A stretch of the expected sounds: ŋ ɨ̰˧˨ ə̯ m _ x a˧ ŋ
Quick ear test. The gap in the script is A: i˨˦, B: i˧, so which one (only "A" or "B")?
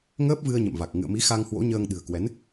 A